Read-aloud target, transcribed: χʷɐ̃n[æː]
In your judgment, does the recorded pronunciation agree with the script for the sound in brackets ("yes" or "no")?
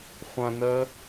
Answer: no